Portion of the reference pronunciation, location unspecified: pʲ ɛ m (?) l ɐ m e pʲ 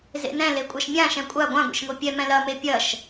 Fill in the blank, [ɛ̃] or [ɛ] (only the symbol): ɛ̃